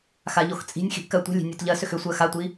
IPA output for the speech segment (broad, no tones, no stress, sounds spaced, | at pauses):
x a ʎ o x t͡sʼ i̤ nʲ x i̤ ʔ k ɜ tʷ i̤ lʲ i̤ nʲ o t ʎ ɜ s ʏ x ʏ sʷ ɜ x a tʷ i